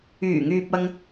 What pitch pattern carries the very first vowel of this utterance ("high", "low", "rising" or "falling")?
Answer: low